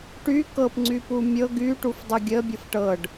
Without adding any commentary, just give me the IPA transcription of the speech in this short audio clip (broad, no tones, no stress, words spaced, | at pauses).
ʈy kɤp ŋ͡ǀypumʲɤ ɡy ʈufdˤuɡʲə bʲɤfʈɤɖ